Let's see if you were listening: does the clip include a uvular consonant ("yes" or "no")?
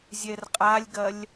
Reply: yes